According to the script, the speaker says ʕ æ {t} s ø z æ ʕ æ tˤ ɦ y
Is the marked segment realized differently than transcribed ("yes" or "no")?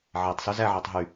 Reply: yes